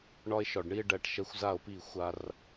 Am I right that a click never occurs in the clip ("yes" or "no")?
yes